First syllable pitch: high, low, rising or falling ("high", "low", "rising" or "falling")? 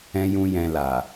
high